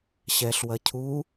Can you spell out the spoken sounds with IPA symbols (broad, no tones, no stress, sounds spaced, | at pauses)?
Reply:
ɕ ɛ ɬ w ɐ cʰ u